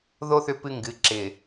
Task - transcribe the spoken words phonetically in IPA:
ðo˦ θʏ˦pɨ˦ŋɡɨ˨˦ ǁɪ˨

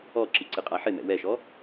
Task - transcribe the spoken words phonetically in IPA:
ɔǁi ǀɪqʼaħɪmɛ̰ wɛʃɔ

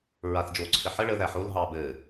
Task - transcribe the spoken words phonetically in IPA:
ɹaθd͡ʒoːǀʰɘħə ɭə ðæħol ɦɑːbɘː

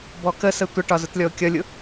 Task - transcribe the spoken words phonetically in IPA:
bɔkəsə tʷəʈɒ zʊtlʲɔo̯kʲʌlʲʊ

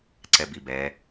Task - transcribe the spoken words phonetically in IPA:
ǀɛbibɛ

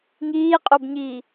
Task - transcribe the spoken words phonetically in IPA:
ŋiːqʼobɲiː

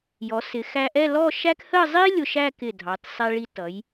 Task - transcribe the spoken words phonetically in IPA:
jɔ˩˧sɪ˩˧ xæ˧ʔɛ˥˧ lɔ˥˧ʃæ˥k hə˥˧zˤi˥ lʲʊ˧ʃæ˥˧ kɪ˧˩dʱɑ˩˧t sˤɛ˧ɭi˧tʌ˩˧j

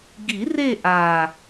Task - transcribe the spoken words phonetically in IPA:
ɡi˨˩˦ re˥˧ʔa˨˩

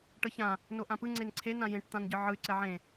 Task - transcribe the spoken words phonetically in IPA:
ʈɤçã | noʔãpɯ ŋ͡ǀenǀʰen ãjẽʈ t̪ãnɟɯʕɯy̯ ǀɛʕẽ

